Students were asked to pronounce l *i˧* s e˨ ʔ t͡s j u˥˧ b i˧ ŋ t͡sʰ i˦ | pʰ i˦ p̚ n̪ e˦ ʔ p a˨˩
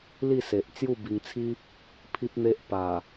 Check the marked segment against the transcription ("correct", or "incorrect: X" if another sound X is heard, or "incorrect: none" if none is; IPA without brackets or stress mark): incorrect: i˥˧